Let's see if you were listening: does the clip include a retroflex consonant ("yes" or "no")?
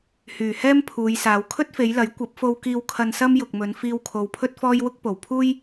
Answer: no